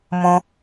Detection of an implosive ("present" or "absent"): absent